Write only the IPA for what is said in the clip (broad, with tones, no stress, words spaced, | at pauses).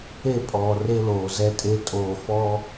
e˦˨pʼɔː˨ re˦loː˨ zɛ˦tʼe˦ tʼoː˨fɔ˦